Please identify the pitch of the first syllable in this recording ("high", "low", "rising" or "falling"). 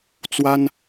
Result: high